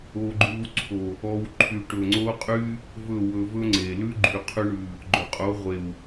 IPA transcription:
o˧ ɡ͡ǃ ʉ˧ w ǀʰ o˨ | ɔ˧ w ǃʰ y˨ ʈ ɵ˨ ŋ͡ǀ o˦ qʼ y˦ | v ɵ˦˨ w ɵ˧ v ɵ˦ ŋ͡ǀ e˨ l ʉ˦ ɡ͡ǃ y˨ qʰ ʉ˧ ɳ ʉ˨ | ɡ͡ǃ ɵ˨ qʼ o˨˦ ʁʷ e˨ w

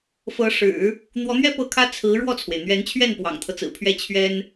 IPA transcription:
f ɤ˧˥ ʂ ɻ̩˨˩˦ | n̪ w ɔ˧˥ n̪ ɥ ɛ˥ p ɤ˥˩ kʰ ä˥ t͡sʰ ɹ̩˧˥ ɻ w ɔ˥˩ t͡sʰ w e˩ ɪ̯ n̪ ɥ ɛ˧˥ n t͡ɕʰ ɥ ɛ˥˩ n p w ɑ̰˨˩ ŋ t̪ʰ ɤ˦ t͡s ɹ̩˨˩ pʰ ɥ ɛ˥˩ t͡ɕʰ ɥ ɛ˥ n

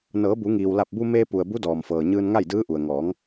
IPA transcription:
n ɤː˩˧ b u˩˧ ŋ iː˩ w l a˧˩ p̚ b u˧ m eː˧ p u˩ ə̯ b u˧˥ d ɔː˩ m f ɤː˩ ɲ ɯː˧ n ŋ a˥˨ j d ɯː˧˥ ʔ u˩ ə̯ ŋ ɔː˩˧ ŋ

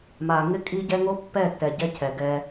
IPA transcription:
m a˨ ŋ ɪ˦ kʼ i˦ ɟ ɛ˦ ŋ o˦ pː ɛ˦˨ tː ɛ˨ ɟ ɛ˦ cʰ ɛ˨ ɡ ɛ˦

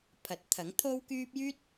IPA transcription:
pʰ ɐ˨˥ t̚ t̪ʰ ɐ˨˥ ŋ t̪ʰ o˥ w k yː˥ p̚ j yː˥ t̚

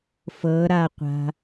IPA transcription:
f ɤ ɾ a qʷ a̤

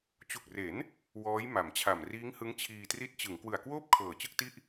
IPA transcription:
t͡ɕ u˨˩ k̚ r e˩˦ n | w ɔː˦˥ j m a˩˦ m t͡ɕʰ a˨˩ m r iː˦˥ ŋ h ɯ˦˥ ŋ t͡ɕʰ iː˧ t r i˦˥ t̚ t͡ɕ ɯ˩˦ ŋ k w ɯ˨˩ a̯ k w oː˥˩ p̚ kʰ ɤː˨˩ t͡ɕ ɯ˥˩ k̚ t i˥˩ ʔ

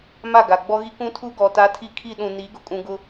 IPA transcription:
m a˦˨ ɡ a˨ ɡ͡b ɔ˦ ɣ i˦ k ũ˦ tʰ u˦ ɡ ɔ˨ t a˦ tʰ i˦˨ kʰ i˦˨ ɗ ũ˨ n iː˨˦ ɡ ʊ˨ kʼ ũ˨ ɡ ʊ˦

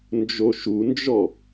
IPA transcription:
n d͡ʒ o ʃ u n d͡ʒ ɔ

